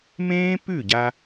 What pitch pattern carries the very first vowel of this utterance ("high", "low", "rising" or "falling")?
high